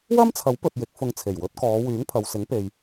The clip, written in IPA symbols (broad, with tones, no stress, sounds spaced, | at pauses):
w ɐ˥ m t͡sʰ ɐ˨˥ w p ɵ˨ t̚ j ɪ˨˥ k̚ f ʊ˧ ŋ t͡sʰ e˨˩ j w ɵ˨˥ t̚ k ɔː˨˧ w yː˨˥ ŋ pʰ ɐ˨ w s ɪ˨˥ ŋ p e˨ j